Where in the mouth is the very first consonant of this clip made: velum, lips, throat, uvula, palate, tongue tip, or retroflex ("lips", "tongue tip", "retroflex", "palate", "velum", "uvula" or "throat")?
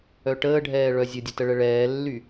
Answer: retroflex